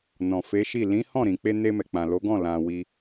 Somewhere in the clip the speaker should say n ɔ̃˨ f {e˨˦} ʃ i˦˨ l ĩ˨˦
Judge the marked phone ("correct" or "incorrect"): correct